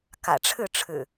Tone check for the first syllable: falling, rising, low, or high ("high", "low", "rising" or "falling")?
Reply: low